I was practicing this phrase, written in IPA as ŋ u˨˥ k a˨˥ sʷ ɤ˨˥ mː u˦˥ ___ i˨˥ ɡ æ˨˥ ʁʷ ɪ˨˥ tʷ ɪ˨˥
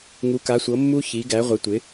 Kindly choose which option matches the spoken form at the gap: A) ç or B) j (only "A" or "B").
A